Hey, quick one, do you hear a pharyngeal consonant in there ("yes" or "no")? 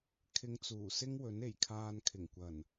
no